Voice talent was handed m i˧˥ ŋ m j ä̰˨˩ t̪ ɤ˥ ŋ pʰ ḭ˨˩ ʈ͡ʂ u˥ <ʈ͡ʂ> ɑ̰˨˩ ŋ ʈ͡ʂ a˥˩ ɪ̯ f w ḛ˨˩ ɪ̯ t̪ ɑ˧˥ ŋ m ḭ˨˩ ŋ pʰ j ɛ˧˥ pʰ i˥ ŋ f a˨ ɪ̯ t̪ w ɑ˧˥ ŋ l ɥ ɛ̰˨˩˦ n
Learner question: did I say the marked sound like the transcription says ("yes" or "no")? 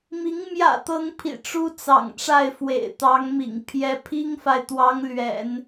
no